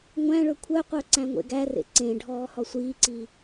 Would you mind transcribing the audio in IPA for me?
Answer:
ŋʷæ̃ɭɵ kʷʰœqʷœ ǀæ̃ŋʷḛɡærḛ ǀẽ ɖʱɔːhɔsʷiːǀiː

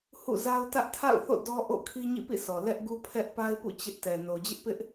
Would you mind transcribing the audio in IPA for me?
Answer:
hṵ˦˨ za˦ʊ̯ tä˦ʔtʰa̰˦˨ʊ̯θo̰˦˨ dɔ˦ʔo̰˦˨ kʰi˦ɲḭ˦˨pḭ˦˨sʰɔ˨ lɛ˦ʔɡu˦ pʰɛ˦ʔ pa˦ɪ̯pṵ˦˨ t͡ɕɪ˦ʔ tɛ˨ no˨d͡ʑɪ˦ʔpɪ˦ʔ

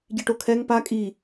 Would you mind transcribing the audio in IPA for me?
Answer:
ɟiʈokʰɛŋ pa kʼi

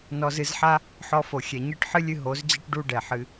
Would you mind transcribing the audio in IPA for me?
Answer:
nɔ˧zɨ˧zħa˦ | ħɔ˧fo˨ xʲɛ˨ɲɨ˦˨ʈħɨ˦lʲɨ˧ ɦo˨˦zd͡ʑɨ˦ʈ ɖu˦ɖɛ˨ħɨ˧

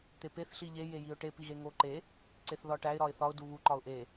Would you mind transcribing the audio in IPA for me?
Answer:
t̪epeθ ɬiʎe jejiʊ̯ʈe piɣeŋoǃe | ǀeθðɒʈæɪ̯ ɾɒɪ̯θɒʊ̯ duβu ǃɒʊ̯ʔe

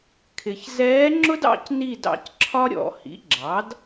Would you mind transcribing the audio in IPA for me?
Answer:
kʰɪ˨ç zɛː˧˥ŋ͡ǁʊ˥dɑ̰˦˨c ni˦˨d ɑ̰˩˥cǁʰɒ˥ ɾʲɔ̰˨˩˦ hḭ˩˥ɡ͡ǁɑ˩˥d

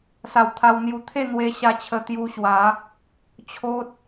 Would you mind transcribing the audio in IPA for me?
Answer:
sa˧wt̪ʰa˧wn̪ju˧ t̪ʰe˥˧n̪we˧ ɕa˧ t͡ɕʰə˧t̪ju˧ɕwa˨˦ | t͡ɕʰo˦t̚

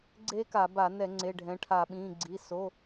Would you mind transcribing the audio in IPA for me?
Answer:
ɡ͡ǀe˦˥ka˧˩˧ ba˧˩˧nɛ˧˩˧ ŋ͡ǀe˩˧˩ɖʱɛ̃˩˧˩ ʈʰa˧˩˧ɓĩ˩˧˩ɡ͡ǀi˩˧˩ so˩˧˩

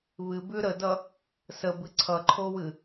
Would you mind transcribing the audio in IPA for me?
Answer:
βɨbʉ ɾədʌ | səbɨ ǀʰʌǃʰowɨ

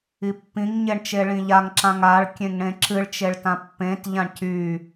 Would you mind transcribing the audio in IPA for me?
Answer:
ipːĩŋɲeɳ t͡ʃeɭĩʎaŋǁãŋ aɭkʲẽŋ ɽẽǁɨɭt͡ʃeɭ tãpːẽtʎãɳ cy

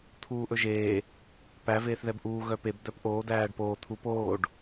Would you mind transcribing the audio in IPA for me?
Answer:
t̪ʰuːʔɵʒeː | pæ veːθðɛbʔuː ɣœpeb d̪œpʔoː d̪æːɖpoː t̪ʰup oːɖ

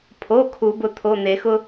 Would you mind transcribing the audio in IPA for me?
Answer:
pʰo˩˧˩ kʰu˨˩˦bʊ˩˧˩t̪ʰo˩˧˩ n̪e˨˩˦xʊ˦

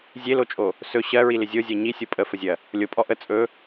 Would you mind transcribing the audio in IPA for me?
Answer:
zʲelot͡ʃʼo | sɵ ɕɜɹilɪ zʲozʲɜ ɲisʲo pʼəfəzʲɜ | lʲopʼɔ ʔə t͡sʼɵ

